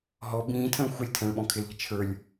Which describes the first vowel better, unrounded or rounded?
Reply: rounded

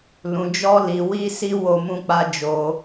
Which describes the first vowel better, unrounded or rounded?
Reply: rounded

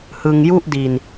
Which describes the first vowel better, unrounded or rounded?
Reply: unrounded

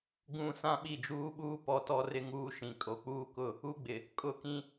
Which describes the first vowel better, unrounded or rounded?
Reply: rounded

